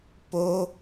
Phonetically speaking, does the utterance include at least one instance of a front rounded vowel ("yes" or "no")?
no